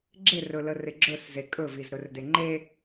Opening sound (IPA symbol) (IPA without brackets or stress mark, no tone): ɡ͡ǁ